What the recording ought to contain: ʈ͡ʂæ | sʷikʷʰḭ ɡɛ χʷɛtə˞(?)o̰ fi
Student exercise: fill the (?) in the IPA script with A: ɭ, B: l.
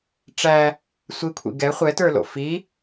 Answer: B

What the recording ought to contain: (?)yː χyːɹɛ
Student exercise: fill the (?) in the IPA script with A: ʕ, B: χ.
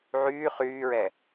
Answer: A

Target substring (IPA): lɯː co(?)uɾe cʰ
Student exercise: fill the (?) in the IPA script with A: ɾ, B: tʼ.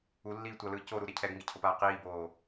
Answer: A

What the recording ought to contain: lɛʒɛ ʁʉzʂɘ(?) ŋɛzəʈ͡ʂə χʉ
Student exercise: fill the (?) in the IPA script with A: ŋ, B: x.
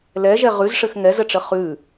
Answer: B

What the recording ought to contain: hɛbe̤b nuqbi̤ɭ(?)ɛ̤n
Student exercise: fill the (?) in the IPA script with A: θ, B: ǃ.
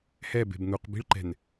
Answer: B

